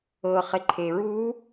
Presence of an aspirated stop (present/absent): present